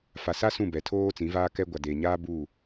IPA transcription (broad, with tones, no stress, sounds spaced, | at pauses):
f a˨ s a˦ s ũ˦˨ b ɛ˨ tʰ oː˦ t͡s ĩ˨˦ v aː˦ k ɛ˦ ɡʷ a˨ d eː˨ ɲ aː˦ b u˦˨